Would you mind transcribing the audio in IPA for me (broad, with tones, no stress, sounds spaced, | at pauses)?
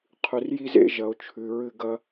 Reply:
qʰ ʉ˨ r j i˦ z ḛ˦ ʒ ɐ˨ o̯ t͡ʃʰ ʉ˨ ɹ ɨ˧ ɡ ɐ˧